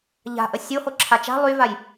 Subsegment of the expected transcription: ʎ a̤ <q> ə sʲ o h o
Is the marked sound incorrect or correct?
incorrect